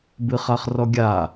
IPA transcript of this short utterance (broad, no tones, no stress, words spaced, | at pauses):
bɨχaχrɔɡʲa